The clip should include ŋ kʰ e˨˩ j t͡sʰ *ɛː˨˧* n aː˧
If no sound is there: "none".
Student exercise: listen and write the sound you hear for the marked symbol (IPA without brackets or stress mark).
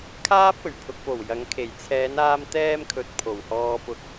ɛː˨˧